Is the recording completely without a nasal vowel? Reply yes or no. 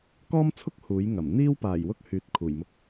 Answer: yes